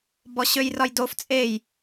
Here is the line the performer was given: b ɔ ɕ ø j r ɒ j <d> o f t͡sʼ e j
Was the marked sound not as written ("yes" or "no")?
no